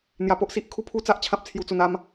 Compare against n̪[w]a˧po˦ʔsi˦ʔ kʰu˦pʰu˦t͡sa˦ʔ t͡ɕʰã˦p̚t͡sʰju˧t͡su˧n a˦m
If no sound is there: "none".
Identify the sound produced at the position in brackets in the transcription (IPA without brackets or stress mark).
j